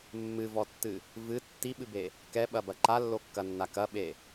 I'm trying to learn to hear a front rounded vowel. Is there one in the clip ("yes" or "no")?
no